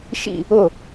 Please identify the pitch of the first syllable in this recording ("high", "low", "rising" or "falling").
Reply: falling